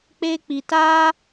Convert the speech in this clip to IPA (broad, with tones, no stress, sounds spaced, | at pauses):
k͡p e˦ k͡p i˧ t a˦